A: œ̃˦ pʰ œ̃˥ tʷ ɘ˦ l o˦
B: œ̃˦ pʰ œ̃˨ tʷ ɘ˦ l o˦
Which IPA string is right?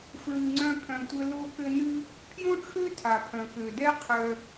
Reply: B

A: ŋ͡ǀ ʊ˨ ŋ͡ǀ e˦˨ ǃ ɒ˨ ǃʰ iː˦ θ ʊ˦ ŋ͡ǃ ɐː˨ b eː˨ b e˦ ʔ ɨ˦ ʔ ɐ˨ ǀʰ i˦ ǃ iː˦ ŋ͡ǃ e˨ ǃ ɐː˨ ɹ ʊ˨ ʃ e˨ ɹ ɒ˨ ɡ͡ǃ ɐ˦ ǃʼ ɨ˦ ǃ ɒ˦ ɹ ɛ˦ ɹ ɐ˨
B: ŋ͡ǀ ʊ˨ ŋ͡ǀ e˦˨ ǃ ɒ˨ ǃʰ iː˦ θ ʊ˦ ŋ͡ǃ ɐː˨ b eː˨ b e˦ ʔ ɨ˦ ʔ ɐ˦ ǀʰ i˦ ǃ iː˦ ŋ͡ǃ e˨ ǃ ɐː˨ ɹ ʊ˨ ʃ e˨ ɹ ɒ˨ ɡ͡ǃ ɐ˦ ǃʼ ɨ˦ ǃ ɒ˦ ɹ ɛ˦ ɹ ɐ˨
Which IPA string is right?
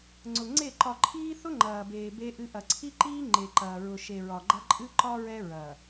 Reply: A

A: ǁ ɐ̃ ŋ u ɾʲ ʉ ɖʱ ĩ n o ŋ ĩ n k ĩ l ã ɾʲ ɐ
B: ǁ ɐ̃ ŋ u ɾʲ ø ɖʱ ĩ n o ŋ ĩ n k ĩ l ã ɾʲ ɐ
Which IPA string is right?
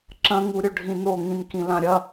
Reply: B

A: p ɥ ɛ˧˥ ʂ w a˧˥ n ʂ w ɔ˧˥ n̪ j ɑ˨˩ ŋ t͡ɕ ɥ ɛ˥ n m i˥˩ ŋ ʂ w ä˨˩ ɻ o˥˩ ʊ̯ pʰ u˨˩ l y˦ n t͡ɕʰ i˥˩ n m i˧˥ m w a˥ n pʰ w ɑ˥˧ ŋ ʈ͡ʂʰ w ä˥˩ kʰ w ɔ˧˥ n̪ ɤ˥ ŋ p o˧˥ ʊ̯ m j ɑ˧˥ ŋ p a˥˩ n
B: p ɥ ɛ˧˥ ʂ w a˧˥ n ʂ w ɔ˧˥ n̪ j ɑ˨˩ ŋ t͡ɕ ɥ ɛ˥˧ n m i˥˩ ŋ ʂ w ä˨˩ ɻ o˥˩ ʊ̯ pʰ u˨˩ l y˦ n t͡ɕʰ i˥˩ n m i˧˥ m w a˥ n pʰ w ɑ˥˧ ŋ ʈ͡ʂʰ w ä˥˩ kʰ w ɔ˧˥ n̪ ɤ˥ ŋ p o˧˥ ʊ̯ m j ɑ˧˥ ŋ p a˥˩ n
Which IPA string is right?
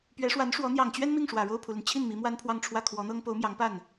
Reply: A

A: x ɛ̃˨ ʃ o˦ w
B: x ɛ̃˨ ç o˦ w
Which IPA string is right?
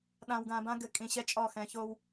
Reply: B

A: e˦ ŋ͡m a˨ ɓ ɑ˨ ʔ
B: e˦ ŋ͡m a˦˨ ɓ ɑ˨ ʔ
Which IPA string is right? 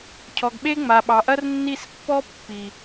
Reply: A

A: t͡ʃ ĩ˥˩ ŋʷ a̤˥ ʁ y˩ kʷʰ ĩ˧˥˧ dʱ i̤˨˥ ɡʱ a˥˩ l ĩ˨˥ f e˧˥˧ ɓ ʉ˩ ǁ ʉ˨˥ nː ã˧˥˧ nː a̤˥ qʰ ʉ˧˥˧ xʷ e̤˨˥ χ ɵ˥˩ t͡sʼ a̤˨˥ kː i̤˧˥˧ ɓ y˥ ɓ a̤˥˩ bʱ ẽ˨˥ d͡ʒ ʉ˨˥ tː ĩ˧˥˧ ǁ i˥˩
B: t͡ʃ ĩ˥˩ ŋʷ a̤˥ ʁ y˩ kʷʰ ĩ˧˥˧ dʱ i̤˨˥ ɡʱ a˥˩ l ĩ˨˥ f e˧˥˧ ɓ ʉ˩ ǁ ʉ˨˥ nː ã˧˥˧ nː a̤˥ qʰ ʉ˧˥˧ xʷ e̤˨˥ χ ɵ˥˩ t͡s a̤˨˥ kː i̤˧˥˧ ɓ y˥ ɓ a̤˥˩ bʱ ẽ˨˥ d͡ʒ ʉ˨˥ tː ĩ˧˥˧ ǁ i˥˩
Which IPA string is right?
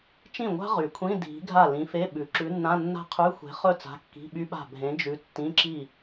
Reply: B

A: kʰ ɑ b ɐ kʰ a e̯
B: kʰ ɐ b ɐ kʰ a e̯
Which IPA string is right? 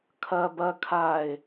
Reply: B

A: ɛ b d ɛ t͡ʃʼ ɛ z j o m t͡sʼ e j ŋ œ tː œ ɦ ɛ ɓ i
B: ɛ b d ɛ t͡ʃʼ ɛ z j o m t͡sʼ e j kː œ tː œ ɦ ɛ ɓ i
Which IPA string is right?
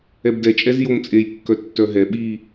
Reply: B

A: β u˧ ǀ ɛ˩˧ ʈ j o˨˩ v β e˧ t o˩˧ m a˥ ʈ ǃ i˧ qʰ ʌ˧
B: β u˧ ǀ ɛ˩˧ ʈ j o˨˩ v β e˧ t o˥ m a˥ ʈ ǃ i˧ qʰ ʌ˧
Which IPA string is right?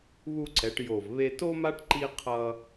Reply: B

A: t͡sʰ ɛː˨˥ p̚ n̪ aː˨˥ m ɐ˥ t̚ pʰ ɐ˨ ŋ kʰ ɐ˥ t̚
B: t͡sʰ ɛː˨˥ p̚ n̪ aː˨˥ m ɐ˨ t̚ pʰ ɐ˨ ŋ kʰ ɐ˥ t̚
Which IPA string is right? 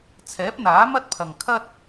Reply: A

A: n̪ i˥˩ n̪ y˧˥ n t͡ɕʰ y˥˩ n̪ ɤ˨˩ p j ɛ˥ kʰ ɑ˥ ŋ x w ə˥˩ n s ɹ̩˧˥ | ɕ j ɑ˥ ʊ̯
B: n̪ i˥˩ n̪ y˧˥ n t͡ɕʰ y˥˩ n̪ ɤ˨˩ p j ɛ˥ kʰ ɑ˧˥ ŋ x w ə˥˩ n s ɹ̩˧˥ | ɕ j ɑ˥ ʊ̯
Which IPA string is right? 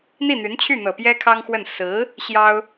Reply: A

